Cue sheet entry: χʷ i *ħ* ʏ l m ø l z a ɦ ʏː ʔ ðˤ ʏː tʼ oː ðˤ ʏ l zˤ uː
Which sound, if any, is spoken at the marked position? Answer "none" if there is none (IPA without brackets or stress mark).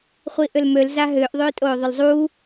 ʔ